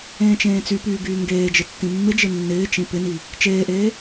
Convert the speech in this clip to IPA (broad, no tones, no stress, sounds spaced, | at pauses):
ẽː t͡ʃ ẽː t͡s y p yː ɡ yː ŋ ɡ eː d͡ʒ ɪ tː ĩ mː ɪ d͡ʒ ɪ nː ɪː t͡ʃ ĩ p ɪ n i | t͡ʃ eː ʔ eː